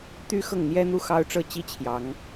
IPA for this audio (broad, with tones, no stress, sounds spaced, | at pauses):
t̪ y˥ x ɤ˥˩ ŋ n̪ j ɛ˥ n̪ u˥˩ x ɑ˥ ʊ̯ ʈ͡ʂ ɤ˥˩ t͡ɕ i˥ t͡ɕʰ j ɑ˧˥ ŋ